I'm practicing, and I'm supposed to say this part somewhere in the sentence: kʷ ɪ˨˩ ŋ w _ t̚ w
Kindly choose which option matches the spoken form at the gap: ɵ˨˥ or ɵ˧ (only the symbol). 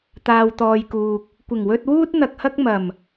ɵ˧